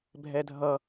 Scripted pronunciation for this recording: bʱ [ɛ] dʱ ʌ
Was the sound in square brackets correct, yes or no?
yes